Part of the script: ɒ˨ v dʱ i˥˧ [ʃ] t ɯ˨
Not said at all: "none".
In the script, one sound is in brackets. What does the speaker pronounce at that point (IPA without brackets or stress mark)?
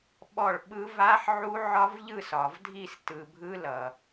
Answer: s